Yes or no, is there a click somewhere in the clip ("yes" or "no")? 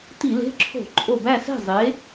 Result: yes